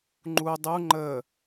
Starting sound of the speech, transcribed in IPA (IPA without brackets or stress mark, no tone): ŋ͡ǃ